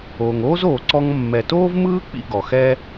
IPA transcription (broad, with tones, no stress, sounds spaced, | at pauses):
oː˩ ŋ oː˥ z oː˩ ǀ ɔ˧ ŋ mː ɛ˩ t oː˥ v m ɯː˥ k͡p ḭ˧ ɡ ɔ˩ x ɛ˥